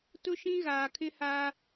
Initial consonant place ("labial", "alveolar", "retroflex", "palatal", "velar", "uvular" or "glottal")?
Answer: alveolar